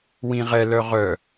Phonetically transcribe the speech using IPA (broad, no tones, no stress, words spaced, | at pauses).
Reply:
wĩʁɛ lœʁœ